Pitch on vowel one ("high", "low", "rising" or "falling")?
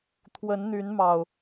rising